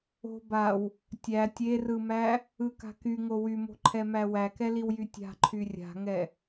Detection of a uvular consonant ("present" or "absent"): absent